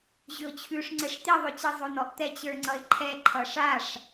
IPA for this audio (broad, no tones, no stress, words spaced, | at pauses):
ʑʏʊ̯t͡ɕʰʉʂŋ͡ǀɛʂ t̪iðˤʉt͡ɕi zˤonɔʔ t̪ɛt͡ɕə˞ŋ͡ǀʌɪ̯ǃʰɛ ǃʰʌʂaʂ